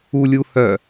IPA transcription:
ulʲuhœ

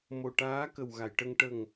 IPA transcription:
mo˨˩ʈaː˧˥kə˨˩w ɣa˨˩˨jʈə˧ŋ ʈə˨˩ŋ

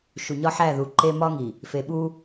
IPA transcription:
ʃu˨ɲɒ˦ħæ˦˨ ðu˨ ǃe˦ mɒ˦ŋi˨ | fe˨ɓu˦

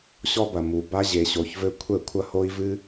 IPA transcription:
ɕɔ˦bɐ˨mu˨ ba˦ʑe˨ɕo˨çvɘ˦ kʷʰɛ˦˨kʷʰɐ˦ho˦i̯vɨ˦

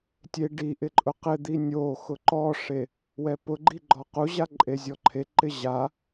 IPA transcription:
tʲe ɖiʔɪ ǃʼʊqɪd̪i nʲo xʊǃɔʂe | wɛpʊɡ͡ǃi ɡ͡ǃɔquʑa ǃʼezʲɔǃʰeǃɪ ʑa

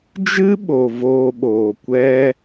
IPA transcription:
d͡ʒɨ˦ɓo˨ voː˧ɓoː˨kʷɛ˦

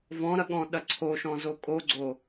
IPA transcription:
vɔ̃ɾɐɠɔ̃ɗɐ ǀʰoʃɔ̃zo kʼoɡ͡ǀo

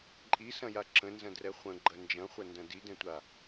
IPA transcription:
ǃʼisɐ̃ja ǁə̃nzɐ̃drɛ χʷə̃ɡ͡ǃɐ nd͡ʒɐ̃χʷɐndɐ̃ didɛ̃tʷa

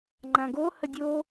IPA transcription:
ŋ͡ǃãɡohə dʲo

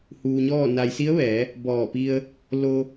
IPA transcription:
huː˧ɲɔː˥˨na˧j si˧˥ə̯ʋɛː˩˧ | bɔː˧˩pi˧ə̯ | lo˧

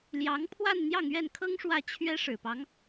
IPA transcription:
ljɑ˧˥ŋpʰwa˥˧n n̪jɑ˥˧ŋɥɛ˥˩nkʰɤ˥ŋ ʂwä˥˩t͡ɕʰɥɛ˥ ʂɻ̩˨˩pɑ˦ŋ

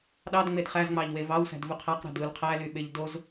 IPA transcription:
ɗɑdŋ͡med χæzŋ͡mɑʎwe vɑwsæ̤dvu qʰæqɾæ̤dlul qʰælyɓeʎ doz

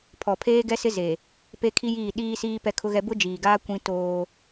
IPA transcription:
pʰɔ˨pʰeː˦ɡɛ˦sɪ˦ ze˨ | pe˦kʰi˦jiː˦˨ ɗiː˦siː˦ pɛ˦kʰʊ˦ɣɛ˦ bʊ˦d͡ʒiː˨ɡaː˦ kʷĩ˦ toː˦

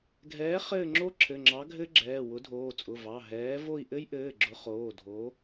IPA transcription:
ɡʱɛː˨˥χɘː˦˨ŋ͡ǁo˦˥ ǁʰɘ˩˧˩ŋ͡ǁɑ˨˥ɡʱɘ˦˥ ɡ͡ǁɛː˩˧˩wʊ˨˥dʱoː˩˧˩t͡sʼʊ˩˧˩ vɑ˩˧˩ɦɛː˨˥ vo˦˨i̯ ʔɘ˦˥jʔɘː˩˧˩ ɡ͡ǁʊ˨˥χoː˩˧˩dʱo˨˥

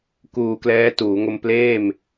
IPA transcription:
kuː˧klɛː˦˥tuː˩˦ŋo˧m pleː˥˩m

